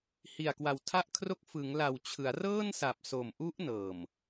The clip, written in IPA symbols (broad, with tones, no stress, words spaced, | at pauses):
hi˨˩a̯kwa˨˩w tʰa˥˩ʔkʰro˥˩k̚ fɯ˩˦ŋla˨˩wt͡ɕʰɯ˩˦a̯rɤː˥˩n sa˨˩p̚so˨˩mʔu˦˥ʔ nɤː˨˩m